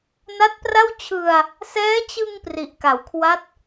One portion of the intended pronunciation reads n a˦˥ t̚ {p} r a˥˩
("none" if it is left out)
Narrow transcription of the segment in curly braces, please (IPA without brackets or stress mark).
p